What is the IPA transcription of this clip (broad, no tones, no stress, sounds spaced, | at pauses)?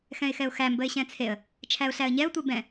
x ɛ̃ ɪ̯ x ɛ ʊ̯ x æ m b ə ɪ̯ ɕ ɛ̃ t͡sʰ e ə̯ | t͡ʃʰ æ ʊ̯ ɬ æ ə̯ ɲ ɛ ʊ̯ tʷ e b ɛ̃